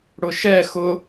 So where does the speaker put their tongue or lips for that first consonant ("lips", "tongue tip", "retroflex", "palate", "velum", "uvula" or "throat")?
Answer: retroflex